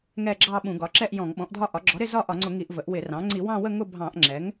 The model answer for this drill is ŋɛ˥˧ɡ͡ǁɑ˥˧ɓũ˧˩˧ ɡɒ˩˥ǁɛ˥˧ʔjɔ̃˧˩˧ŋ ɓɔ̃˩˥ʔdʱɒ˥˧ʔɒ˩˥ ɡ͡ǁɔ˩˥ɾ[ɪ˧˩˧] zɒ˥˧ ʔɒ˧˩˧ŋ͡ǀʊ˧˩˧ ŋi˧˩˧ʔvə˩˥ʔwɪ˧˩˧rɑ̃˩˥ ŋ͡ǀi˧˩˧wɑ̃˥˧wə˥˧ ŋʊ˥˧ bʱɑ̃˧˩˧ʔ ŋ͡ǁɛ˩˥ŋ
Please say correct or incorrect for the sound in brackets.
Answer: incorrect: ɪ˥˧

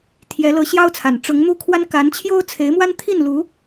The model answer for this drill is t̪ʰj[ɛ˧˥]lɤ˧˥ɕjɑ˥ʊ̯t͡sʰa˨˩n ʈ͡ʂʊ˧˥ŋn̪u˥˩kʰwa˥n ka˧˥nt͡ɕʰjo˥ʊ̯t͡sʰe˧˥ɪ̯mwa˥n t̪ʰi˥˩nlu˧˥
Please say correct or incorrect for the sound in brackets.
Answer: correct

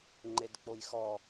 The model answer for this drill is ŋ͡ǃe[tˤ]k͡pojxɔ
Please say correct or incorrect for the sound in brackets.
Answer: incorrect: d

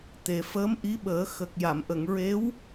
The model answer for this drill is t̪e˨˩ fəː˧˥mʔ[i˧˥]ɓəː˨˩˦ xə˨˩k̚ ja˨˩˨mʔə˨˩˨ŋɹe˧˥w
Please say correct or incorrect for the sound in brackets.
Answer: correct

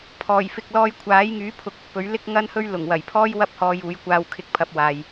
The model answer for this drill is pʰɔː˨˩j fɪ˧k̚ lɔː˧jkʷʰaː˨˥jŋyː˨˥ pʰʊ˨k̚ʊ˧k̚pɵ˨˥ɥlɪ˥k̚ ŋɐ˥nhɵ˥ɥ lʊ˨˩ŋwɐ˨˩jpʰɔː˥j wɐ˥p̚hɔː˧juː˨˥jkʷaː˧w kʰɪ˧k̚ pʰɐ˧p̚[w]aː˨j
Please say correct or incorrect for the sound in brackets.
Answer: correct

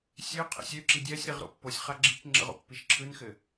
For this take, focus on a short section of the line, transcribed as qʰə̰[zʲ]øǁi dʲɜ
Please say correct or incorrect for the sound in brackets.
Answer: incorrect: sʲ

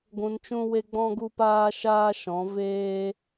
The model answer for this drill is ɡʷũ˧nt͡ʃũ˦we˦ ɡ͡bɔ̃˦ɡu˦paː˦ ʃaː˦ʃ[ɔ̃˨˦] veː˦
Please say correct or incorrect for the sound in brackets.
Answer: correct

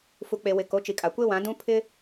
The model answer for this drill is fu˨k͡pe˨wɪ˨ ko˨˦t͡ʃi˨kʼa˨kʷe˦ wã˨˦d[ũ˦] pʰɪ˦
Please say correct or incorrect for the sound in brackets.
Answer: correct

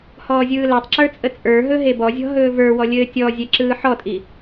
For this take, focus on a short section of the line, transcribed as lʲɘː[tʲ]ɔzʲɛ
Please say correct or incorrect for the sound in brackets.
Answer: correct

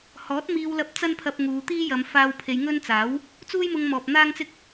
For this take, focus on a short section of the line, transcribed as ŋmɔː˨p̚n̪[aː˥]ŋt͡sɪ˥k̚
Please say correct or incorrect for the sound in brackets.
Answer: correct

